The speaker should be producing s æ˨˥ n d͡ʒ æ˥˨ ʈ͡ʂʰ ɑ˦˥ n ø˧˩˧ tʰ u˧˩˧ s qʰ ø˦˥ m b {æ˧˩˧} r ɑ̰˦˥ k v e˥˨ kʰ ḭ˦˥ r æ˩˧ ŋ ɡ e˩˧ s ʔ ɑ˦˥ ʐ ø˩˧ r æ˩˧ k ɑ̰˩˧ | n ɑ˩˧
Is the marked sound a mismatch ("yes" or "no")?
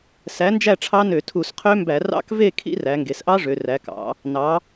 no